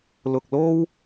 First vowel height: high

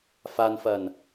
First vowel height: low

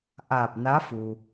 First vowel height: low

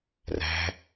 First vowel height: low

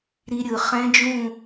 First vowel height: high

